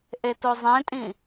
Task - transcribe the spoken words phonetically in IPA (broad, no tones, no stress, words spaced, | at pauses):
ʔetozˤẽtʼĩ